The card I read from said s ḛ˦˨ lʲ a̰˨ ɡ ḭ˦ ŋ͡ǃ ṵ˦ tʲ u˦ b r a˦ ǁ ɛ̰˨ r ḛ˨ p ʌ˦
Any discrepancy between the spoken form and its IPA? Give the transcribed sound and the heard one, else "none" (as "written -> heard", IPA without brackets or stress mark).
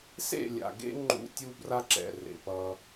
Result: ḭ˦ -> ḛ˦